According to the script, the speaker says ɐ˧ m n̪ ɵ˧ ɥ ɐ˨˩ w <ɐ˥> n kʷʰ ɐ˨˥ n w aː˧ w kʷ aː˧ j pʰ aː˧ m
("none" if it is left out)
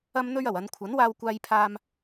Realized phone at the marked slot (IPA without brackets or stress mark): ɐ˨˧